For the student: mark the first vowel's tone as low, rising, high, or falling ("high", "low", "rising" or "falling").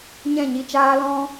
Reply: falling